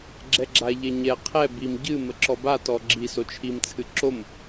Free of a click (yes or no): no